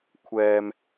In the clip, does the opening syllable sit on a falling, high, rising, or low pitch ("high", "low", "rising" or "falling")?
low